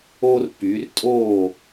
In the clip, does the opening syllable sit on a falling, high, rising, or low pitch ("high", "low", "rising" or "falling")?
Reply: high